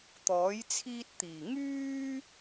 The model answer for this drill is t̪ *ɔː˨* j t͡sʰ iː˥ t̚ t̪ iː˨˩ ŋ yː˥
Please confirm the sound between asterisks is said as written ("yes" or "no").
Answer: no